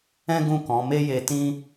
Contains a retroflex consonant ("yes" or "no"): no